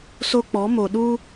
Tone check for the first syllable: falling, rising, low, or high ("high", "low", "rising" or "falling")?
high